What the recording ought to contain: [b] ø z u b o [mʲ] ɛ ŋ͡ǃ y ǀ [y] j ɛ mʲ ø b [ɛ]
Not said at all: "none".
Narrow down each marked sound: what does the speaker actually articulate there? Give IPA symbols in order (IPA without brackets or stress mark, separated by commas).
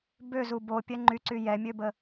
b, pʲ, y, ə